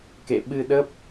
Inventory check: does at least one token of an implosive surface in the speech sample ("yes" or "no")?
yes